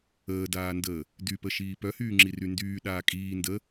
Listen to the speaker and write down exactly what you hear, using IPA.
əː d aː n d əː | d y p ə ʃ iː p œ h yː ŋ͡ǁ i r y n d yː ɗ aː kʼ iː n d ə

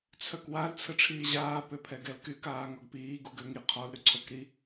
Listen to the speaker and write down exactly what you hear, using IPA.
t͡sʰ œ k w a l t͡sʰ ə ʈ͡ʂʰ iː ʑ aː p ø pʰ ɛ ɡ ɛ l k y k aː ŋ ɔ ɡ p iː ɡ u ɡ ø ŋ i qʰ ɔ l ɾ y ǀʰ o k ɾ i

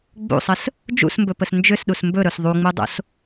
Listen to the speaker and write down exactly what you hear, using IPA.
ɡ͡b ṵ sˤ ə s | d͡ʒ ṵ s m b ɵ p ə s n d͡ʒ ʏ s ɗ u s m b ɵ ɾ ɵ s ðˤ u ŋ͡m u dˤ o̰ s

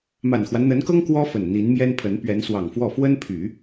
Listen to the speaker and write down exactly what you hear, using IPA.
m a˨˩ n x w a˦ n n̪ ə˧˥ n k ɤ˥ ŋ k w ɔ˥ f ə˨˩ n n̪ i˧˥ n m j ɛ˥ n pʰ ə˧˥ n p ɥ ɛ˧˥ n s w ɑ˨˩ ŋ f w ɔ˥˩ f w ə˥ n pʰ y˨˩˦

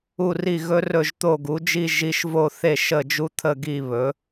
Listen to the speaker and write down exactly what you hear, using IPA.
u˦˨ r i˦˨ ɣ ɵ˧˥ r ɵ˦˨ ʒ t̪ o˦˨ ɡ u˩˥ d͡ʒ i˦˨ ʒ i˧˥ ʃ v o˦˨ θ e˦˨ ʃ ə˦˨ d͡ʒ u˧˥ t̪ʰ ə˦˨ ɡ i˦˨ β ɵ˩˥

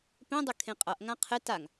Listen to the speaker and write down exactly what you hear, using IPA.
p ẽ dˤ ɵ kʰ ẽ qʼ ʌ ʔ ŋ ã qʰ ɪ t a ŋ

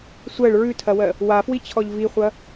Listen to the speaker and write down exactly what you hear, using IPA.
sʷ ɜ ɭ ɹ ʉ tʰ ɐ w ɜ | w a f w i t͡ɕʰ ɔ ʎ v i χʷ ɐ

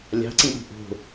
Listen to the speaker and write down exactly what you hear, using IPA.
lʲ ɑ̤ ǀ ĩ ɗ i̤ ʔ o̤

